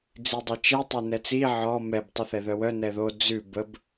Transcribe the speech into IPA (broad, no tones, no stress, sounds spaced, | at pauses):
d͡z i dˤ i t͡ʃ ɛ tˤ e n ɛ t͡s i ʕ ɔ m ɛ b tˤ i θ ɛ ð œ w œ n ɛ ð o d͡z ʉ b ə b